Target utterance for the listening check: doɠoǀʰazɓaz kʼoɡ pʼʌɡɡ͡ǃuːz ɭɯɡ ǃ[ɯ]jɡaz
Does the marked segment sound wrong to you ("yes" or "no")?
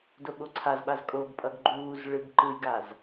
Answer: no